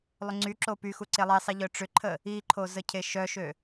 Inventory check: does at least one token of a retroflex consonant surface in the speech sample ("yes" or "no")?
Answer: yes